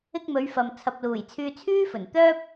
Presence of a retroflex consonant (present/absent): absent